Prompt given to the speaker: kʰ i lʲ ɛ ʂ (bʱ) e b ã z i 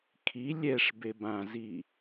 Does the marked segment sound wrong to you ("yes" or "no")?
yes